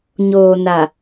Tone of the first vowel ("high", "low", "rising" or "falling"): low